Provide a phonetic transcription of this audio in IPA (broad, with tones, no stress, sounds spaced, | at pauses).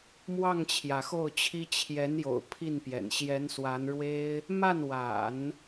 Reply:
m w ɑ˥˩ ŋ t͡ɕʰ j ä˩ x o˥˩ ʊ̯ t͡ɕʰ i˥ t͡ɕʰ j ɛ˧˥ n j o̰˨˩ ʊ̯ pʰ i˥˩ n p j ɛ̰˨˩ n ɕ j ɛ˧˥ n s w a˧˥ n ɻ w e˥ ɪ̯ | m a˥˩ n w a̰˨˩˦ n